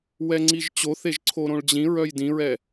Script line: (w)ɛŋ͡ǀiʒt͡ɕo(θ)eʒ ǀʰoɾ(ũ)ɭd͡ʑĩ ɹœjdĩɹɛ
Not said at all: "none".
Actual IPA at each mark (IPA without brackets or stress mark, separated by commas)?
w, θ, õ